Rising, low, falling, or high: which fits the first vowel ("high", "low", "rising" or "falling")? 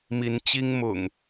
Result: rising